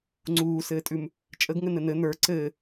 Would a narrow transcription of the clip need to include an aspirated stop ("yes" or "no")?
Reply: no